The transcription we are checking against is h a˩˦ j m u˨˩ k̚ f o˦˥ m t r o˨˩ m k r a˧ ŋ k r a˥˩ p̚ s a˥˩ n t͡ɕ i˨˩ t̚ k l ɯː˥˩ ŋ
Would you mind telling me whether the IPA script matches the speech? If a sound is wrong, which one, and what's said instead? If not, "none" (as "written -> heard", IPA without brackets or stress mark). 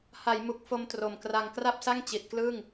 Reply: n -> ŋ